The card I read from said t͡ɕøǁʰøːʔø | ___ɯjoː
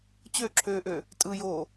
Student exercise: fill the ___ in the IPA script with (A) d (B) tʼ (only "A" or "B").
B